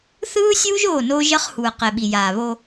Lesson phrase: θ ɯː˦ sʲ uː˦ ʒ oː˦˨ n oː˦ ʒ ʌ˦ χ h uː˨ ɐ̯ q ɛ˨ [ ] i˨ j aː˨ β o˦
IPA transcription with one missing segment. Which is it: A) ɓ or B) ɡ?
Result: A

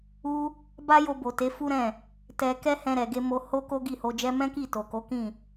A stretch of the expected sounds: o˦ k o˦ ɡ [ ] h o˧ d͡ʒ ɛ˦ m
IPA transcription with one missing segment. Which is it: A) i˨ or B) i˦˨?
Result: B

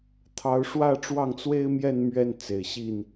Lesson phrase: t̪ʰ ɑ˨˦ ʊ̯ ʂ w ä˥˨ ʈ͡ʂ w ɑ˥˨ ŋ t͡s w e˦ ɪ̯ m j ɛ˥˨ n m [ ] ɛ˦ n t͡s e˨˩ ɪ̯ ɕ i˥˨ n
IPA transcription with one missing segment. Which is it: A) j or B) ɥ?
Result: B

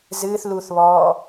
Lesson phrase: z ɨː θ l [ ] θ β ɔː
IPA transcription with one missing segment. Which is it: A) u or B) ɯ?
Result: A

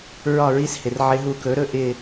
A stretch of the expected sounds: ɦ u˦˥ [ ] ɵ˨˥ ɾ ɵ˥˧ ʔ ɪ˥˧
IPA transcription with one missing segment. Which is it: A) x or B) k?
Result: B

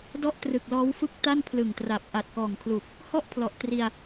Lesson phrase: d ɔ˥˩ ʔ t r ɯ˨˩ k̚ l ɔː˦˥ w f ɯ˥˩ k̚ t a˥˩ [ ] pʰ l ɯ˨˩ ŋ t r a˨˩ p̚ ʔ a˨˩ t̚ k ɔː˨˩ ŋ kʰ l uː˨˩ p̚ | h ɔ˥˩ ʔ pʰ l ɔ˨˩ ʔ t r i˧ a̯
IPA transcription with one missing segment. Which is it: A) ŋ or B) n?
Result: B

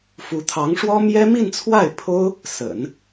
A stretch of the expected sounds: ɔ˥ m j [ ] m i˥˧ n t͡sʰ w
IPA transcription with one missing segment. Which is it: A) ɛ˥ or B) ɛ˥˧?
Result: A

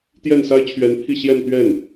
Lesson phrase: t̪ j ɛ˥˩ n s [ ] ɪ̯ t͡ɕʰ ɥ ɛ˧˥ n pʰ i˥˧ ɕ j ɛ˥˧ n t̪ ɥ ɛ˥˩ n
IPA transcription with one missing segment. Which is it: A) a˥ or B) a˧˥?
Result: A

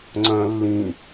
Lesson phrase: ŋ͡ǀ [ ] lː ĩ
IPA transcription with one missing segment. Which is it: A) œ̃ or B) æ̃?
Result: A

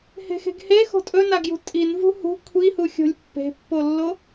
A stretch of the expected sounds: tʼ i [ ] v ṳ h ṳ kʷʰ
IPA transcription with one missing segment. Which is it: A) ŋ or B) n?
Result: B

